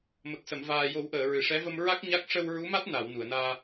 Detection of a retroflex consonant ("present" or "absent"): present